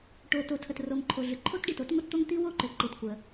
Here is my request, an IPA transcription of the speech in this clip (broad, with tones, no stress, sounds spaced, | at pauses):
ʈ o˩ t o˩ tʰ ə˩ t r o˩ ŋ ǃʰ o˩ ɮ ʏ˩ ǃʰ o˥ t ɖ i˩ t o˥ t ŋʷ ə˥ t t̪ o˥ ŋ t̪ i˥ w o˥ ǃ ʏ˩ ǃ i˩ t kʷ ə˩